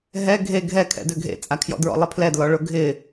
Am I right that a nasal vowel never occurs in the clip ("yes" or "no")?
yes